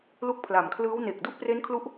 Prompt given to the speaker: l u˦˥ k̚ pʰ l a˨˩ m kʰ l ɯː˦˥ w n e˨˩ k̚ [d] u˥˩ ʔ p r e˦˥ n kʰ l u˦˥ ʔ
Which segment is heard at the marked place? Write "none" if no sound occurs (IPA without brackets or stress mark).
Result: d